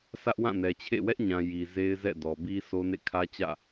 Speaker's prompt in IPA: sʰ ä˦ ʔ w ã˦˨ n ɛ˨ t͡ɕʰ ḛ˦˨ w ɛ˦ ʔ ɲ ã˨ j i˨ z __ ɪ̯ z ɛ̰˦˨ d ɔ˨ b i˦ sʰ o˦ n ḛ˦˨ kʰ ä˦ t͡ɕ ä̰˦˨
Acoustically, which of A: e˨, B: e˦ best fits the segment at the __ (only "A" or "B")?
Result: B